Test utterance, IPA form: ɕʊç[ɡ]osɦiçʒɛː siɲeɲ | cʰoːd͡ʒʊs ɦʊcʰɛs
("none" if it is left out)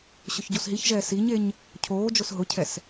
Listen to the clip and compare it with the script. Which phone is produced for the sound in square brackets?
ɟ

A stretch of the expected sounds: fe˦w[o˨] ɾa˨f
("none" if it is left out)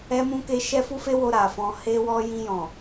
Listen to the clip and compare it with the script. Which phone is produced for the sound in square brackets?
o˧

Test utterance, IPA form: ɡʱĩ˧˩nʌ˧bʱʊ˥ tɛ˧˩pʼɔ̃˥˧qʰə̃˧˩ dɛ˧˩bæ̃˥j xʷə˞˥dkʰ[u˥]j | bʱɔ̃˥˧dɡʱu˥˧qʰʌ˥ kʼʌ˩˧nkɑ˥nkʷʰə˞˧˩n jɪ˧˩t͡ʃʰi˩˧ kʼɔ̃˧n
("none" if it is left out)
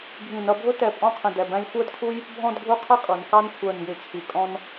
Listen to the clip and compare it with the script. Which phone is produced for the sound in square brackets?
u˥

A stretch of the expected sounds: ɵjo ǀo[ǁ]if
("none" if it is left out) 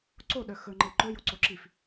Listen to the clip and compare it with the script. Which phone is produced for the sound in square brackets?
ǁ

